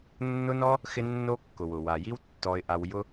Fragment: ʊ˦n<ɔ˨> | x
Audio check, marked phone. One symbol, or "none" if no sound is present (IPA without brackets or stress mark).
ɔ˦